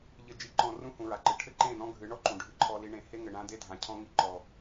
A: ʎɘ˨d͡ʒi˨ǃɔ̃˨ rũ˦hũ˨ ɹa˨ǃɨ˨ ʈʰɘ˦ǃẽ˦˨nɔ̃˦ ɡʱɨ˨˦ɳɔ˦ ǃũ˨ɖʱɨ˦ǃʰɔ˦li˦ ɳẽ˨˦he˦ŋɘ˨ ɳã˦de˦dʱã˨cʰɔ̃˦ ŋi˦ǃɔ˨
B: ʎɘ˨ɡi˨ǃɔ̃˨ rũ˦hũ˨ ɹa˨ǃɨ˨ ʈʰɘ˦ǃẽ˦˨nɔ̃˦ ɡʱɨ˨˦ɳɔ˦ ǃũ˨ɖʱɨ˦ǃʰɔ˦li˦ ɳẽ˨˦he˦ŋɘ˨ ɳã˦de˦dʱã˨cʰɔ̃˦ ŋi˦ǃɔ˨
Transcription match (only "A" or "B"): A